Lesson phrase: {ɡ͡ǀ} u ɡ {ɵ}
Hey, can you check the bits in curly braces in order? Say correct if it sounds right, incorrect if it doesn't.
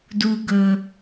incorrect: d, correct

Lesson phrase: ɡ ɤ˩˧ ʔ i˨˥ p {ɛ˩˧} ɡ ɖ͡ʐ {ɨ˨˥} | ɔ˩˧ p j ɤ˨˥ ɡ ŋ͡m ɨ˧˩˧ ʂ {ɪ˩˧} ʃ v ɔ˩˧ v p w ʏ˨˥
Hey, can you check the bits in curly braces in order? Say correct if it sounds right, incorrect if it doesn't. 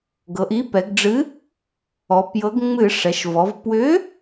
correct, correct, incorrect: ɛ˩˧

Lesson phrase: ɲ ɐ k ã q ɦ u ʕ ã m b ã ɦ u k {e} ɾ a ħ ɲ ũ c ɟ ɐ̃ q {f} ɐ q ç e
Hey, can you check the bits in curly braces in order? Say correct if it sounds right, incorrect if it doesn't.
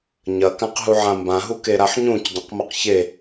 correct, incorrect: m

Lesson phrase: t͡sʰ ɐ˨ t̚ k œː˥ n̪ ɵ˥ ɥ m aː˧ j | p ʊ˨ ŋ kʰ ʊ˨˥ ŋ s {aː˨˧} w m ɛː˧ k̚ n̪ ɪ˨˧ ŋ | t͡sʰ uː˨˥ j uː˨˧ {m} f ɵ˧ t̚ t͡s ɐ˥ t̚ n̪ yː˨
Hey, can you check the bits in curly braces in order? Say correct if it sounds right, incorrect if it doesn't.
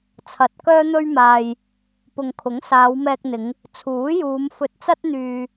correct, correct

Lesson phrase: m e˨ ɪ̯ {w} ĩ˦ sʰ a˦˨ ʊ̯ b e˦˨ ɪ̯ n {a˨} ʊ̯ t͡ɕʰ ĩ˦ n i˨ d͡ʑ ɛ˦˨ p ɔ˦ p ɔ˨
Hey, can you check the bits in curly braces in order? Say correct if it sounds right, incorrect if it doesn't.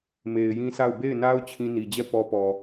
incorrect: j, incorrect: a˦

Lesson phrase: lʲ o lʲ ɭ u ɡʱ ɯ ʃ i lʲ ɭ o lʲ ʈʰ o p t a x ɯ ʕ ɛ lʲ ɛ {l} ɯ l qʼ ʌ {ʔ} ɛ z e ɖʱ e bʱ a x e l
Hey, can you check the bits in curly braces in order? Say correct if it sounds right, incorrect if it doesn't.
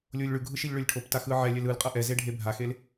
correct, correct

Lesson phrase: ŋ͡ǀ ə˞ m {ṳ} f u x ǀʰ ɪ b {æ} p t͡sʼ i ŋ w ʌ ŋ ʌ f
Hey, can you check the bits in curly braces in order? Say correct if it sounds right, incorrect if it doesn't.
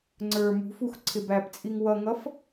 correct, correct

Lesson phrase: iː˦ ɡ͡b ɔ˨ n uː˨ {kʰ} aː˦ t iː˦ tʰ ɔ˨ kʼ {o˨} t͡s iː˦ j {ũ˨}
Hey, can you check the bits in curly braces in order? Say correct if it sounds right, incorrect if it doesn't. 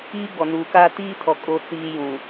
incorrect: k, incorrect: o˦, correct

